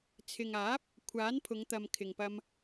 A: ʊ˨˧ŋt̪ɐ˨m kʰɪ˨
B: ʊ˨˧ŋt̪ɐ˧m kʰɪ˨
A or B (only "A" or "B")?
A